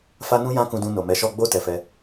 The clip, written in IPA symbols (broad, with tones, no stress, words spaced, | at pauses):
fa˧nũ˧jã˧ kũ˧dũ˧ no˨mɛ˧ʃɔ˦ ɡ͡bo˦˨tɛ˨ fɛ˧